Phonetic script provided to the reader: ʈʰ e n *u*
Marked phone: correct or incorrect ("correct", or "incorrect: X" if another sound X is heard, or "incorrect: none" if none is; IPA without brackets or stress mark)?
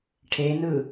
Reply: incorrect: ɯ